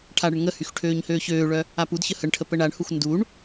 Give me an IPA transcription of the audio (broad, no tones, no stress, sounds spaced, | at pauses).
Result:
ʈʰ a ɽ ə ɳ ŋ ə h y x ʈʰ øː ɲ h øː ç øː ɭ œ | a p u d ç ə h ə ɳ ʈʰ ə p ə ɳ a ɳ h u x n d u ɳ